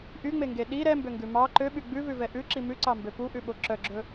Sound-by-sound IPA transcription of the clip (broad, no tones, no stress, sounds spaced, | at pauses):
ʔ y ŋ͡m e ŋ ɡ e ɗ i ɾ ɛ m b ø ŋ ɡ ʉ m ɑ ǃ ø ɓ y ɡ͡b ʉ v ʉ v ɛ ʔ ʉ ǁ i m ʉ ǀ ɑ m b ø p u ʔ ʉ ɓ o ǁ œ ɡ͡ǁ ɵ